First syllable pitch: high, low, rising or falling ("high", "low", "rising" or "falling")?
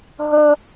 high